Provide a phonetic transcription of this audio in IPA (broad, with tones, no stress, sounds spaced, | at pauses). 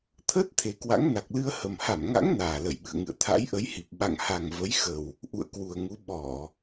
t̪ʰ əː˦˥ t̚ t̪ʰ e˨˩ k w a̰˧˥ ŋ n a˨˩ k̚ l ɨ˧ ə̯ h ə˨˩ m h a˧˩ m ŋ a̰˧˥ ŋ n aː˨˩ l ə˧˩ j ɓ ɨ̰˧˨ ə̯ ŋ ɨ̰˧˨ ə̯ t̪ʰ a̰˧˥ j ʔ ə˨˦ j h i˨˩ p̚ ɓ a̰˧˨ ŋ h a˨˩ ŋ v ə˨˦ j x ə˨˩ w | ʔ ṵ˧˨ ə̯ k w u˨˩ ə̯ ŋ u˨˦ ɓ ɔ˧˩˨